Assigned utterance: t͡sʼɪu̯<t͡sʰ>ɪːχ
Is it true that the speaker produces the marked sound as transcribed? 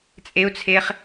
yes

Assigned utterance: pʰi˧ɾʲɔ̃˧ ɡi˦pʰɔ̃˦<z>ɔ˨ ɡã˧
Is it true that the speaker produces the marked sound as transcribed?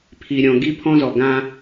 yes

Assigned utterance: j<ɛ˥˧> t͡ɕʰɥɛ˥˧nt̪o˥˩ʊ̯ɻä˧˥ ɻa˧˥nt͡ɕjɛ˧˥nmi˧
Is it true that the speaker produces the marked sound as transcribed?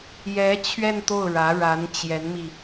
no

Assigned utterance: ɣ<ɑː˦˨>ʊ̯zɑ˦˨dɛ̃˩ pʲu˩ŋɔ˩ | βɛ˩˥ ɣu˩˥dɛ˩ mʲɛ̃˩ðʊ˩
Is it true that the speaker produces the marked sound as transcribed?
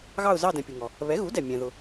no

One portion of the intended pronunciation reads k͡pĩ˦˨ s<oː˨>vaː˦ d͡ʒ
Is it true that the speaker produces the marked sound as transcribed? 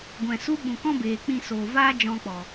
yes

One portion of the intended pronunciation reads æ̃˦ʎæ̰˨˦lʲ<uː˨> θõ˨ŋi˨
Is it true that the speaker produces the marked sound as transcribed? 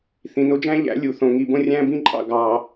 no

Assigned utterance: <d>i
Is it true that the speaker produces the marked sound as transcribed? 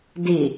yes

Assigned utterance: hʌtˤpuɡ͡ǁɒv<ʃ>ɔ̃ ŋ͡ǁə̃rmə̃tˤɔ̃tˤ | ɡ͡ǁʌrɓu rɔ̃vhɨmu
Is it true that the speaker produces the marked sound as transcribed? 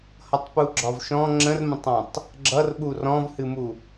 yes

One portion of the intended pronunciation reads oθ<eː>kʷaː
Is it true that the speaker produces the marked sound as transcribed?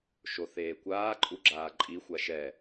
yes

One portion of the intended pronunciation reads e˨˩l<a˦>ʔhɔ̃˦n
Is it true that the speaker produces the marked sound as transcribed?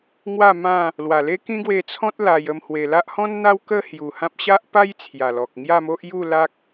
yes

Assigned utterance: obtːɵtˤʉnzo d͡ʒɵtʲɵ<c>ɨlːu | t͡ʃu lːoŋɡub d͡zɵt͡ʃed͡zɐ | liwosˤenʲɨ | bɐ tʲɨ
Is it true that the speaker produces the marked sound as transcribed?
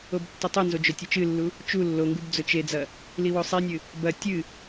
no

